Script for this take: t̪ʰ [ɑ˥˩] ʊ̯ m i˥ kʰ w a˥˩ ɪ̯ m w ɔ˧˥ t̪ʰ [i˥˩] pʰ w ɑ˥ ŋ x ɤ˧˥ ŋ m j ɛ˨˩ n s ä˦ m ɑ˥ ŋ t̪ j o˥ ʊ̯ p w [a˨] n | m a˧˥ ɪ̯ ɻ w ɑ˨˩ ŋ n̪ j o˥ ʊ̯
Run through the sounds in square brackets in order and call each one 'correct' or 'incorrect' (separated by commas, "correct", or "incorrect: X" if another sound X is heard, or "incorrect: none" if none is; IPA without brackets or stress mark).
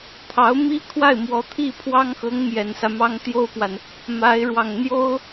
incorrect: ɑ˧˥, correct, correct